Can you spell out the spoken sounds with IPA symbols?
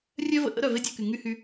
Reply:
rʲœ˦və̰˨ʔə̰˦ ɾœ˨ve˦dʲɐ˦˨ky˨ ŋy˦hy˧

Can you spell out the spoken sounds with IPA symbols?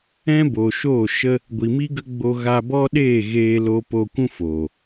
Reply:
ɛ̃˦ bo˨ʃoː˦˨ʃə˦ | ɡʷi˨mi˦ɡə˦ɡ͡bo˧ ɣa˧bɔ˦ɗeː˦˨ ɣeː˧ lo˧po˧kʷũ˦ foː˨

